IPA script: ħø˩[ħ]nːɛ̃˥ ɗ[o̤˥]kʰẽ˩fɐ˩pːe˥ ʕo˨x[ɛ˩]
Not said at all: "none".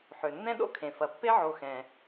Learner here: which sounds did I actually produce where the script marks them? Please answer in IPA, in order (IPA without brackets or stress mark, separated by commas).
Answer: none, o̰˥, ɛ̃˩